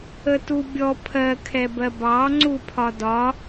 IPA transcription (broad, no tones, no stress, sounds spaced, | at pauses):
ə t u bʲ ɔ pʰ ɜ kʰ ɛ b ɜ b ɑ ŋ͡ǀ u pʰ ɒ d ɒ